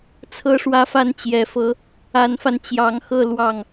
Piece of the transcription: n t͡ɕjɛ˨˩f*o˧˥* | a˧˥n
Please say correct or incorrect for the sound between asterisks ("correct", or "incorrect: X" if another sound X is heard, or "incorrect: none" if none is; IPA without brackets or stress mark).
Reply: incorrect: ɤ˧˥